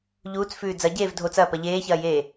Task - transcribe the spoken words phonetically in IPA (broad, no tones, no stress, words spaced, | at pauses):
ʎuːt͡sfʉː d͡zɐɟeːv dʱot͡sɐːpɐ ʎeːçɐːjeː